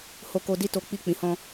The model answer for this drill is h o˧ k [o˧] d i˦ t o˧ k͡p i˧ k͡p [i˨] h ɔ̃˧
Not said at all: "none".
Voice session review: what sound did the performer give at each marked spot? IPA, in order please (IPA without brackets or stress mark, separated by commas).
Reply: o˧, ĩ˨